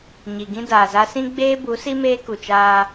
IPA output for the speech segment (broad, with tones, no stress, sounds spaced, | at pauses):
ɲ i˨ ɡ ĩ˦ d aː˨ z a˦ s ĩ˦ ɡ͡b eː˦ b u˨˦ s i˦ m eː˦ k u˨ t͡ʃ aː˦